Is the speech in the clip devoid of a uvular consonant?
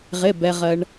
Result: no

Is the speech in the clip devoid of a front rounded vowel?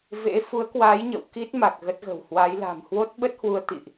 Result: yes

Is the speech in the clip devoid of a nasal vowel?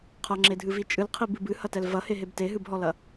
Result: yes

